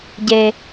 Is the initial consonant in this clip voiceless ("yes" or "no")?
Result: no